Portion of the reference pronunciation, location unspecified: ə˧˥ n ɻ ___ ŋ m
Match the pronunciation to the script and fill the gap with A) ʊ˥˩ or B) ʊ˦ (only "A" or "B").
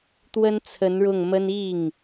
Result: A